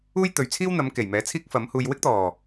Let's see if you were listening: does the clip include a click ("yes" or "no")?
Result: no